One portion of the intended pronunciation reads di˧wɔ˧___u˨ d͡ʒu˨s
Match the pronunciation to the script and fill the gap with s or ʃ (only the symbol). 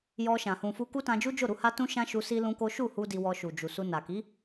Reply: ʃ